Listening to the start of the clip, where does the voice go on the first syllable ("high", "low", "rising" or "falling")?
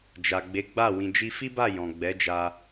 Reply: low